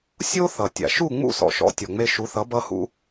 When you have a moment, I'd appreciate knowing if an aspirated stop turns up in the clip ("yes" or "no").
no